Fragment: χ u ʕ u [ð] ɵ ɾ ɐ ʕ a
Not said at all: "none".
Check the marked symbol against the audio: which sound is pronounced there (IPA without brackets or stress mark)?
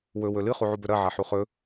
b